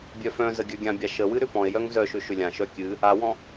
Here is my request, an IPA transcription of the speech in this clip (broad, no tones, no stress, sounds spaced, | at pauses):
bʲ œ f œ̃ z ə ɡʲ œ ɡʲ ã bʲ a ʃ ə w ɨ ɾ ʏ p ɔ̃ e̯ j œ ŋ z œ ʃ ʏ ʃ ʏ lʲ ã ʃ œ kʲ ɨ | a w ɔ̃